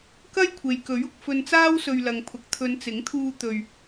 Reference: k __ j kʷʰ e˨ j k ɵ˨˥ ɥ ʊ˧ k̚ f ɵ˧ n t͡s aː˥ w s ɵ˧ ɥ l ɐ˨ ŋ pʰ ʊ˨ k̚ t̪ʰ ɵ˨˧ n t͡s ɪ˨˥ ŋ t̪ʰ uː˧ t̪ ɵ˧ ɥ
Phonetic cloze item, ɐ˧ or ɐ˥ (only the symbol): ɐ˥